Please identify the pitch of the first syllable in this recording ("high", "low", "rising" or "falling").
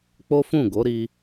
high